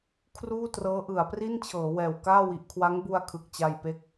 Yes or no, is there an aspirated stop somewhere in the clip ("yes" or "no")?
yes